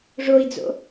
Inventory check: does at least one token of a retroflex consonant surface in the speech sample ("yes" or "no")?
yes